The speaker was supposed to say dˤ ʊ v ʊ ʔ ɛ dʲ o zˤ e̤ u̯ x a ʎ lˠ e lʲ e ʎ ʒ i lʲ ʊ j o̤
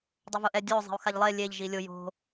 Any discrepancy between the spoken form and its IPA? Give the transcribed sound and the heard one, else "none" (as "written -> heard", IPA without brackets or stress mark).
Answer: none